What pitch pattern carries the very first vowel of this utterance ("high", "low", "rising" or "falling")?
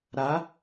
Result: rising